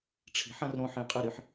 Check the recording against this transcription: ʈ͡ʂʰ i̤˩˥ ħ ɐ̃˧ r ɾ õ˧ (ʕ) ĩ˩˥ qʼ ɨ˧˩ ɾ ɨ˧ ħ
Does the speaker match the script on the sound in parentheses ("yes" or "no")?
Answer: no